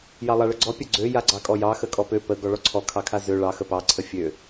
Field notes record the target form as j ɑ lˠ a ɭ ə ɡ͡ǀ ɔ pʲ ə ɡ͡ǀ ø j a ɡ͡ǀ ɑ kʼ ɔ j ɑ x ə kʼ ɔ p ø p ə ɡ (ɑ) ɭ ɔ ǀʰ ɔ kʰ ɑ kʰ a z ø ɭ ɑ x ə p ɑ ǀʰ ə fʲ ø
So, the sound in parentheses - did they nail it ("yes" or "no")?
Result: no